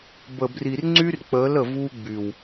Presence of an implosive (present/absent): absent